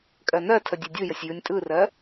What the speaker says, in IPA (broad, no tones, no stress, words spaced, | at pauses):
kʼɜnɜtʰə dʲedʲɯjəsʲ jɯnʲtʼɯrɜ